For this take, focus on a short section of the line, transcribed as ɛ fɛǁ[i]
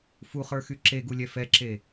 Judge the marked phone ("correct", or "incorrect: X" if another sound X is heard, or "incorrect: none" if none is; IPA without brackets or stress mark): incorrect: e